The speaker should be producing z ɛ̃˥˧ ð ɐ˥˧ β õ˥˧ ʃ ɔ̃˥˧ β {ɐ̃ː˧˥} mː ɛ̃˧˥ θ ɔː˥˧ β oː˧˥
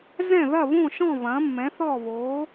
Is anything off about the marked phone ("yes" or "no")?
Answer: no